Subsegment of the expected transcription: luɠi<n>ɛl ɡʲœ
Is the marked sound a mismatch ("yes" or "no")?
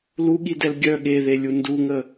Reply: yes